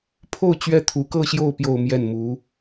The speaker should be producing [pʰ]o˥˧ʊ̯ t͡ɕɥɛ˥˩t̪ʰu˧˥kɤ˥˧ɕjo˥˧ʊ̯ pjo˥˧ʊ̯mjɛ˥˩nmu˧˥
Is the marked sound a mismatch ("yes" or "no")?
no